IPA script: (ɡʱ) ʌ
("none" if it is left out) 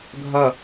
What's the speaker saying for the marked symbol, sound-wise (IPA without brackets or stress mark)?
ɡʱ